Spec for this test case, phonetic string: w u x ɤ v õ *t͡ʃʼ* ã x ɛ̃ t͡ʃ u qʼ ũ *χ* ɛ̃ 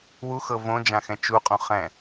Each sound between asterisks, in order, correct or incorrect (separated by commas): incorrect, correct